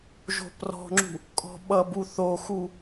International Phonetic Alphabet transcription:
ʒo̤prɔ̤ŋ͡ǁṳ | kʼɔ̤ɓʌbu θoxu

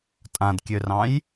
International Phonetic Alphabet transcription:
tʼãdkʲørɑ̃j

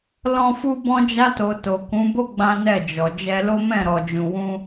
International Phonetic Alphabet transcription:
lɔ̃˦fu˦ bɔ̃˦d͡ʒa˦to˧ to˨kũ˨˦bo˦ ɡ͡bã˦nɛ˦˨d͡ʒɔ˨ d͡ʒɛ˧lo˦mɛ̃˦˨ɾɔ˨ d͡ʒũ˨wũ˧

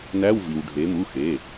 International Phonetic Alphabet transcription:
næ˧˥˧wvi˩w ɖʱe˩˧mu˩˧˩ xe˩˧˩

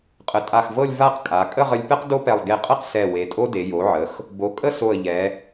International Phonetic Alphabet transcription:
qʼə˩˧tʼa˧˩xvɤ˥˧lʲ va˥˧qkʼa˩˧ kʼə˥˧ʁə˧lʲpɛ˥q do˥pɛ˧˩lˠ ɡe˧˩qʼə˥˧q sɛ˧˩ we˩˧tʼo˥de˩˧ jo˩˧ʕə˩˧x | bo˩˧kʼə˥˧so˧˩ə̯ ʎɛ˩˧

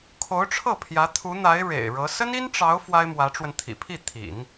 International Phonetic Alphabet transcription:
kʰo˧˥ʊ̯ʈ͡ʂʰɤ˥˩ pʰjä˧˥ t̪ʰu˧˥n̪a˧˥ɪ̯ ɻḛ˨˩ɪ̯ɻɤ˧˥ sə˥ni˥nʈ͡ʂɑ˧˥ʊ̯ fwa˥ɪ̯mwä˧˥ʈ͡ʂwə˧nt̪ʰḭ˨˩ pʰi˥˩t̪ʰḭ˨˩˦n

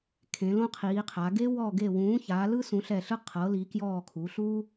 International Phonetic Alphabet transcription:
kʰẽ˨˥lõ˥qʰiː˨˥qʰa˨˥ ɡe˥ wɔ˦˨ɡe˦˨wũː˨˥ ça˨˥lɯ˥ sũ˨˥ɬɛ˦˨ɬɯ˥ qʰɤ˨˥li˨˥kjɔː˦˨kʰu˨˥ ɬu˥

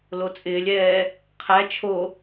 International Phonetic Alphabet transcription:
lot͡sʼɪːlʲɛː | qʰæ t͡ʃʰo

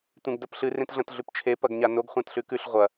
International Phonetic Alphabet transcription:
tʷẽɡdɐpɬɨ rẽtɮɐ̃tɮʉpt͡ʃʰe pɐɡɲanoɡ χʷãtɬʉkʉɬ ʁʷɐ

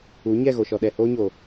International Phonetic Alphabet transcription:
u˨˦ ɲɛ˦˨ɣo˨ʃɔ˨ ɗɛ˨hoː˦ɲoː˨

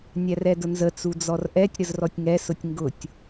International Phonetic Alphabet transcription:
nʲærɛdʊnzə t͡sud͡zɔrʔɛtʲ ɾəzrɔtʲŋɛ sʊtʲŋɡʊtʲ

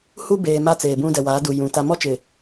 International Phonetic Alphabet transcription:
hu˦beː˨ ma˦t͡seː˨bũ˦ dɛ˨waː˨˦du˨jũ˨ ta˨mɔ˦t͡ʃɪ˨

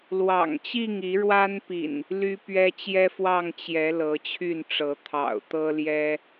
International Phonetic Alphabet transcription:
lwɑ̰˨˩ŋt͡ɕi˥˨ŋi˨˦ ɻwa˦npḭ˨˩n | ly˦pɥɛ˦ t͡ɕjɛ˦fwɑ˥˨ŋ t͡ɕjɛ˨˦ lɤ˨˦t͡ɕʰy˥˨nʈ͡ʂɤ˨˦ t̪ʰɑ̰˨˩ʊ̯t̪ɤ˦ljɛ˦

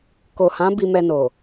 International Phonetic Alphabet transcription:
ko˨hã˨˦ bi˧mɛ˧no˨

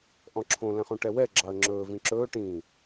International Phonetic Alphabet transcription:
ʔɔ̃ǁʰõ lɛ̃χõʈɛwɛ ɡ͡ǁɑə̯ŋ͡ǁɵː vĩǁɵː ʈĩ

